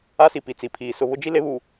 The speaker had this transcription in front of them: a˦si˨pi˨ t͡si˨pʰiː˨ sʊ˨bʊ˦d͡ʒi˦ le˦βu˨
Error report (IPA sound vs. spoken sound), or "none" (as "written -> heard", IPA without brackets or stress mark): b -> β